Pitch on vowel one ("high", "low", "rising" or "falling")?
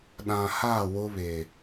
low